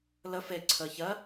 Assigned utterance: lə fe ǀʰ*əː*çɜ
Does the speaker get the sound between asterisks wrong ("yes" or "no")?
no